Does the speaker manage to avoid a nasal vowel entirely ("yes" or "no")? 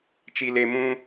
no